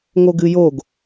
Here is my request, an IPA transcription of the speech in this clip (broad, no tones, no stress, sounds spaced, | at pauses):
ŋ o ɡ ɨ j o ɡ